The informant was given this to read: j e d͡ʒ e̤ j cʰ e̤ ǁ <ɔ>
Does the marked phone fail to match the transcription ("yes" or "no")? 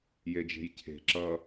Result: yes